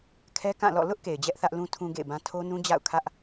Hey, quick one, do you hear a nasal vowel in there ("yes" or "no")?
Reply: yes